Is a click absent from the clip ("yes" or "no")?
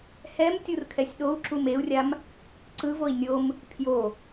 no